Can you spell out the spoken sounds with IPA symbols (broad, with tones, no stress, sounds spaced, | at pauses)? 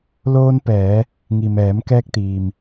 l oː˧ n p ɛː˩˧ | ŋ i˩ m ɛː˩˧ m k ɛː˧ k̚ t̪ iː˩ m